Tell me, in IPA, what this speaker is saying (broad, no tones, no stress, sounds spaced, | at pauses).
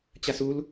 t͡ɕ a s u l